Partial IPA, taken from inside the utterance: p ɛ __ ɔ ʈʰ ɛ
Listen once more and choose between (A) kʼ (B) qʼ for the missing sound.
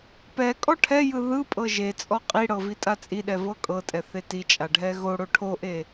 A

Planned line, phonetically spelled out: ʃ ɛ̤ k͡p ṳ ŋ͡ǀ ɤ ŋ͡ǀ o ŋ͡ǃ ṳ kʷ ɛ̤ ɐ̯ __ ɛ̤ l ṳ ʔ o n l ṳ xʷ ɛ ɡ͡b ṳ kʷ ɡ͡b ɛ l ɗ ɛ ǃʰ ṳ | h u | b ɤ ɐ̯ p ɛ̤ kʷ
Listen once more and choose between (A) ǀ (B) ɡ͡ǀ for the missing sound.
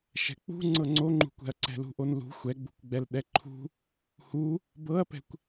A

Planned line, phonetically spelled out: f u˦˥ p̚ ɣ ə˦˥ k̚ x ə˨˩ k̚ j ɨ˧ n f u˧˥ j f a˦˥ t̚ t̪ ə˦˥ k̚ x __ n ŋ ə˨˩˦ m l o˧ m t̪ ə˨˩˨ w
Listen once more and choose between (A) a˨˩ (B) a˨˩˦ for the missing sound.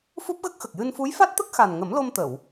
A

